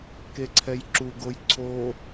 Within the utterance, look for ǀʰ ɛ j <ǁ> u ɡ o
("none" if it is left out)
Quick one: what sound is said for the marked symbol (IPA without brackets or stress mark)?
ǁ